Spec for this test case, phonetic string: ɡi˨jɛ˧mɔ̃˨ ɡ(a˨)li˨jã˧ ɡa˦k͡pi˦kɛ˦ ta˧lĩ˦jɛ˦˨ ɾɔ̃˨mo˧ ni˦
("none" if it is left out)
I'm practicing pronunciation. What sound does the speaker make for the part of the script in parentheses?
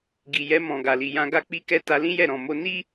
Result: a˨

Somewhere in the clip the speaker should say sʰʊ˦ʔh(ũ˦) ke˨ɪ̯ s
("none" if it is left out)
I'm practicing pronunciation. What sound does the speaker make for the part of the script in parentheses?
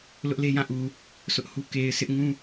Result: u˦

